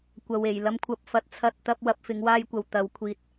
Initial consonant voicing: voiceless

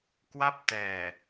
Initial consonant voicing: voiceless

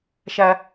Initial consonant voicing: voiceless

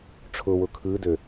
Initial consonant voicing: voiceless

